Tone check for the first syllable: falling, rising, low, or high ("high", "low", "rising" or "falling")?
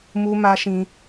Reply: high